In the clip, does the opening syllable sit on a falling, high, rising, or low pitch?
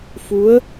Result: rising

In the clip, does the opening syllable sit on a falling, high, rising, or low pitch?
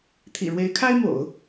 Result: low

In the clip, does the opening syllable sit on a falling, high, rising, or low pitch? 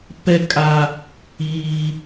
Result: high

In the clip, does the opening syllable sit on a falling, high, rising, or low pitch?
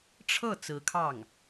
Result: falling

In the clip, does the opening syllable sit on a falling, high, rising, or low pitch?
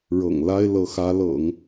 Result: low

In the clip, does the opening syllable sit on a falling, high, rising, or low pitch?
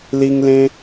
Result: high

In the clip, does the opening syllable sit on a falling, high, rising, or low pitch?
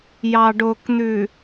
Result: low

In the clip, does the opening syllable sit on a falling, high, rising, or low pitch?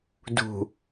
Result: low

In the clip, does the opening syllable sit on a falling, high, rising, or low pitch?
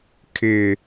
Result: low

